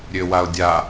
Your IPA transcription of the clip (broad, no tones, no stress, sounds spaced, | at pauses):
ɾʲ ø w a ʊ̯ dʲ a